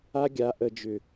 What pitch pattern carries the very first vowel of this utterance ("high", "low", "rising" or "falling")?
high